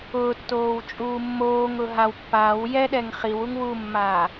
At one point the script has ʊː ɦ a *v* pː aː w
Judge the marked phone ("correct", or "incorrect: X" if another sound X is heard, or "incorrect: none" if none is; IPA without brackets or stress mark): incorrect: w